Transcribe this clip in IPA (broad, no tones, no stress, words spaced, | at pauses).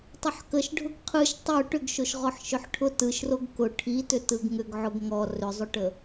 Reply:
tˤʏħkəʃɖʱʊɡ qʰɯʃ tˤo ʈʏɡʃoʃʁɔħ ʃʏħʈʰʊ tɯʃroɡ kʊ ʈʰitʏ tɯɡŋʏɡ ʕʊɡŋɔ rʏzˤʏʈə